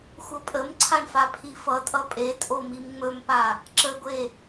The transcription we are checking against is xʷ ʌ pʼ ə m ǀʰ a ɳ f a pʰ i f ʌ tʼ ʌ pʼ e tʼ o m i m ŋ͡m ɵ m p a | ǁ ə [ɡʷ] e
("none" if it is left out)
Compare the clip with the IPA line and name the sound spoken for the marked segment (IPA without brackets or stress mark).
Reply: ɡʷ